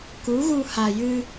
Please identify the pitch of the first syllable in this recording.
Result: rising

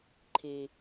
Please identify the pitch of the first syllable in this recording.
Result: low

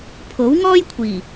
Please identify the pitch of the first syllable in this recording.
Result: rising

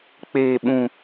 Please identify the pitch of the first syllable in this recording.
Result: low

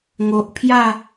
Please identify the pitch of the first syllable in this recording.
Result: low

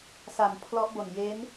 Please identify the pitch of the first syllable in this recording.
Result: low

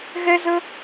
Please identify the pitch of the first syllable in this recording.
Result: high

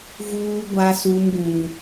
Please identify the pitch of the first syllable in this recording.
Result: high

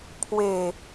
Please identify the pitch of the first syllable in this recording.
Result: low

